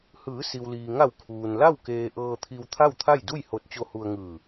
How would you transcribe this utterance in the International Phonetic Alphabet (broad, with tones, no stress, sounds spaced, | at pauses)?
h ɯː˩˧ s i˩ w l iː˩ ŋ a˧˩ w kʰ uː˩ n l a˥˨ w k eː˧ ʔ ɤː˧ t̪ʰ i˧ w t̪ʰ a˥˨ w t̪ʰ a˥˨ j d u˥˨ j h o˧ t̚ t͡ɕ o˧ h u˧ ə̯ ŋ ɯː˧˩